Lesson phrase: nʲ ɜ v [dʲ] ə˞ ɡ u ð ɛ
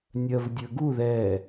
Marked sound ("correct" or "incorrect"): correct